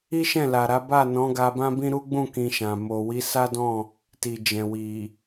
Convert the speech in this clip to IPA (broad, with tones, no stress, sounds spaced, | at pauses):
i˦ ʃ ɛ̃˦˨ l a˨ ɾ a˨˦ b a˦˨ n ɔ̃˨˦ ɡ a˧ b ã˦ b ĩ˦ ɾ u˦ ɡ͡b ũ˦˨ k ĩ˧ ʃ ã˨ m o˨ w i˨˦ s a˦ d ɔ̃˦˨ | t i˨ d͡ʒ ɛ̃˨ w i˨